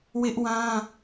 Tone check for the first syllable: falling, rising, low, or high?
high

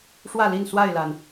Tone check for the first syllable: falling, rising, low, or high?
falling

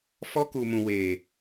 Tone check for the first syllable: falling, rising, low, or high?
high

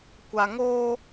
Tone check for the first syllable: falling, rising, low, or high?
low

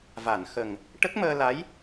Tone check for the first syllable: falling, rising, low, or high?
low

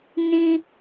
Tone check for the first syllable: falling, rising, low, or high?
low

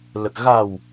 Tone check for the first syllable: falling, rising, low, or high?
low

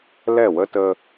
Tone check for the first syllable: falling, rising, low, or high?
falling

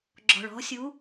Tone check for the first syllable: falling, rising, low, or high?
low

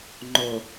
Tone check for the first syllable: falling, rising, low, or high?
low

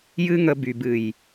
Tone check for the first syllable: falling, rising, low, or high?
high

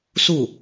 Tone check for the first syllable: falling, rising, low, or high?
falling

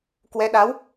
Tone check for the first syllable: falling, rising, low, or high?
rising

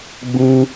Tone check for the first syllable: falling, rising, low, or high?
high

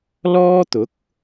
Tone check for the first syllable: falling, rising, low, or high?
high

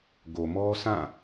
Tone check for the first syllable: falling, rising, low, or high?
low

